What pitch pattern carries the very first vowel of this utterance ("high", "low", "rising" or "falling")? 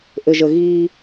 low